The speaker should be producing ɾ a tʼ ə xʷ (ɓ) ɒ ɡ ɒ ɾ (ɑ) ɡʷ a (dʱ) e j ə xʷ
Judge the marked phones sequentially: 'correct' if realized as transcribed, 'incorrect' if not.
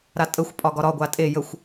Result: incorrect, incorrect, incorrect

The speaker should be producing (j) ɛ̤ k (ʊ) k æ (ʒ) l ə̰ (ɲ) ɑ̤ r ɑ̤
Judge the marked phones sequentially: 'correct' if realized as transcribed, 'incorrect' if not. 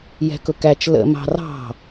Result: correct, correct, incorrect, incorrect

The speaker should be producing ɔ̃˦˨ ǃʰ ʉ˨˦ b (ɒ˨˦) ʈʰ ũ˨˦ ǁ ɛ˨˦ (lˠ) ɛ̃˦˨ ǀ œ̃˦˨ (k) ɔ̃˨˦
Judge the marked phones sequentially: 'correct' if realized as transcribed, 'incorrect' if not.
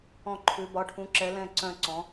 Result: correct, incorrect, incorrect

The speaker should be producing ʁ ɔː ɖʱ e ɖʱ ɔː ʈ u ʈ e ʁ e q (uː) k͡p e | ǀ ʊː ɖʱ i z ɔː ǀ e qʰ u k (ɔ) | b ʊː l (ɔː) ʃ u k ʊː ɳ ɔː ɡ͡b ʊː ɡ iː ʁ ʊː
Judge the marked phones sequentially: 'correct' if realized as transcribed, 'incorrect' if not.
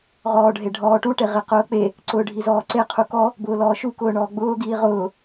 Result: incorrect, correct, correct

